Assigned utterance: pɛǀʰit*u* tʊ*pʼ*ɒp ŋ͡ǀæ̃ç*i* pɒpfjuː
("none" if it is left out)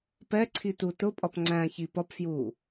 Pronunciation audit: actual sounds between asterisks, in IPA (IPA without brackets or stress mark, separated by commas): u, pʼ, i